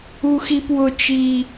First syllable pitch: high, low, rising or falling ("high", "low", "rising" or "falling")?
high